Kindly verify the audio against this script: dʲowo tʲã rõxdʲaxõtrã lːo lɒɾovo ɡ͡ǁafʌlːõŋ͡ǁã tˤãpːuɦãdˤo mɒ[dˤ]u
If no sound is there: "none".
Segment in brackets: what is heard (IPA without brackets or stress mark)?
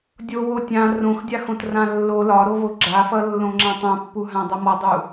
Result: dˤ